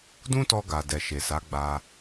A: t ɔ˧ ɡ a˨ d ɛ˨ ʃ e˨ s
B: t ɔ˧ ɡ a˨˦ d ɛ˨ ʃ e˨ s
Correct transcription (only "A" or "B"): A